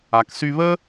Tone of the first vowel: low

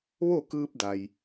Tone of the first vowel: falling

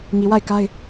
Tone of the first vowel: low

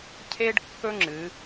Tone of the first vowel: high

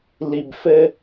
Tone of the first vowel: low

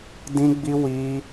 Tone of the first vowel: high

